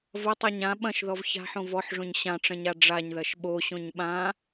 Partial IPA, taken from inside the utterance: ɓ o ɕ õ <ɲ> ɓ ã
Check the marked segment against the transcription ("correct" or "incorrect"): correct